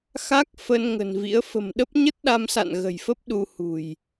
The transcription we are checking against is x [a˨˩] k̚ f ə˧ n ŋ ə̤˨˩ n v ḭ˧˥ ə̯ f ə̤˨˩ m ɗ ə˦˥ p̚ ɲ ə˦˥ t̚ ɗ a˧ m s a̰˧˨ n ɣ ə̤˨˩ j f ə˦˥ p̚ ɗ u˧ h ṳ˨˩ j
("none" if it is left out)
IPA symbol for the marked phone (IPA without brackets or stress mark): a˦˥